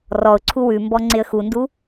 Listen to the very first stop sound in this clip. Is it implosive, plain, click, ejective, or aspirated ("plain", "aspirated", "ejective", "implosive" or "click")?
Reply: click